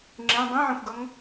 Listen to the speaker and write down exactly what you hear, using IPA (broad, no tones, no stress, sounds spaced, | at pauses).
ŋ͡ǁ ẽ dˤ ẽ ʕ ẽ xʷ ɡ ʌ ŋ